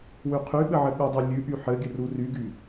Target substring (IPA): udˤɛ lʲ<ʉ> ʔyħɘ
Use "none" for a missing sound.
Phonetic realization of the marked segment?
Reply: ʉ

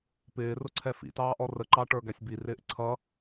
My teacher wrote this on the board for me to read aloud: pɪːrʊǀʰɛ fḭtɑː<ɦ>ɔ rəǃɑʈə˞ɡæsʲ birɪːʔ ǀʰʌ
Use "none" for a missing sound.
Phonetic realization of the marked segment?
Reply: ʔ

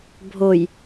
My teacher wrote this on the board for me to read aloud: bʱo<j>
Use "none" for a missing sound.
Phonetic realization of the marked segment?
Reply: j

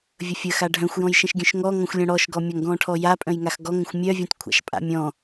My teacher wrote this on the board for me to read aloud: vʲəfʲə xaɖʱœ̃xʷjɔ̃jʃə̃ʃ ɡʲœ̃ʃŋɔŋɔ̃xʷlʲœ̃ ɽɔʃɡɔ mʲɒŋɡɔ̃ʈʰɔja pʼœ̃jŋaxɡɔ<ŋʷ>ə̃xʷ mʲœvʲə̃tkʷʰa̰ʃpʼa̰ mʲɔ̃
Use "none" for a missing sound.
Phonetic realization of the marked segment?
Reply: ŋ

